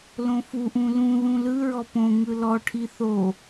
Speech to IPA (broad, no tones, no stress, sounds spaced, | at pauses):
l õ f u ʔ ũ l ũ ð ũ l ɯ ɹ ɔ p õ ŋ ɯ l ɔ ʈʰ i θ o